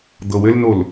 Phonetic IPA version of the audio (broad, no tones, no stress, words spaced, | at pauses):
d̪ɤwɘlnol